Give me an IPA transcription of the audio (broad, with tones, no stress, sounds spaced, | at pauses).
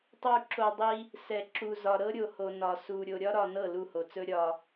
tˤ u˨ ǁ o˨ dˤ i˦ | s ɛ˨ ǁ u˨ z ɒ˨ ɾ ɤ˦ ɾʲ o˨ h o˨ n ɒ˨ s u˨ ɾʲ o˨ ɾʲ ɒ˦ ɾ ɒ˨ n ɤ˦˨ l u˦˨ h o˨ t͡s ɵ˦ ɾʲ ɒ˦